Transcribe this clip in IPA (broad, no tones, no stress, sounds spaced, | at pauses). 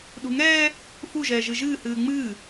ɗ ṳ ŋ ɛː | f u ʒ ɛː ʒ ɨ ʒ ɨː h ɨː ŋ͡m ɨː